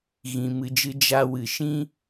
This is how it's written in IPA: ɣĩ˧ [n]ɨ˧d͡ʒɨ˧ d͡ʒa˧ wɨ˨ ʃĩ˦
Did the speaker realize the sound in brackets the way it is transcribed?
no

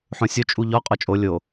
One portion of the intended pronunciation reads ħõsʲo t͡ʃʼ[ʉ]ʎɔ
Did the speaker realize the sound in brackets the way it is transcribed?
no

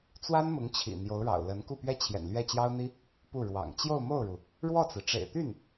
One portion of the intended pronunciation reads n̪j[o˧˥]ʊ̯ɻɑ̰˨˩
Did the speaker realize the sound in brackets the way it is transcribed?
yes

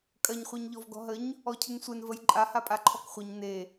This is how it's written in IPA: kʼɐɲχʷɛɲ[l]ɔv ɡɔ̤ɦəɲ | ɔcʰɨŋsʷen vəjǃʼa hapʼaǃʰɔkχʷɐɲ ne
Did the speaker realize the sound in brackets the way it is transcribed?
no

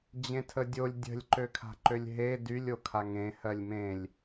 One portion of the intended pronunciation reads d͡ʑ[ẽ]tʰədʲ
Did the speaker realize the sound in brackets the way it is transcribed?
yes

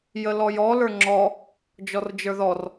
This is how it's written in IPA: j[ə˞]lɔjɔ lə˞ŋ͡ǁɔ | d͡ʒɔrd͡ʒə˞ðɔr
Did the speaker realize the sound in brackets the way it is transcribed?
no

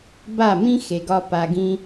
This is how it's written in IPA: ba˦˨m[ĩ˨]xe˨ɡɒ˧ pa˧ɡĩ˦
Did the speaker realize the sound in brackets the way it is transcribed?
no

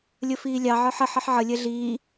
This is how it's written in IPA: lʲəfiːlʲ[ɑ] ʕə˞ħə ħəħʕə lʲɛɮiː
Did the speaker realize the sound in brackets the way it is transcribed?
yes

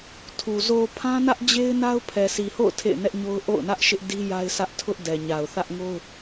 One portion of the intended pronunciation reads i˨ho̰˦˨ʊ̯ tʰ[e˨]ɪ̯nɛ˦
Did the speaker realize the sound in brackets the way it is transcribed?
no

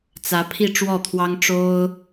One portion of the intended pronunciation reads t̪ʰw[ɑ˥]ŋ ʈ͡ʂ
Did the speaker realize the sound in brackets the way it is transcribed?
yes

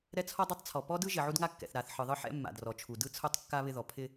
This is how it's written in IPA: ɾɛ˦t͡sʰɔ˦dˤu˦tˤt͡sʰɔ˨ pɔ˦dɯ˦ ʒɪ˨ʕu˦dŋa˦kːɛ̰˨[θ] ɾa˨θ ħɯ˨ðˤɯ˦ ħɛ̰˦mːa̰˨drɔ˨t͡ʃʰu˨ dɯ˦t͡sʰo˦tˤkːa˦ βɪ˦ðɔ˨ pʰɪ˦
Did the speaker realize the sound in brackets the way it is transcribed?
yes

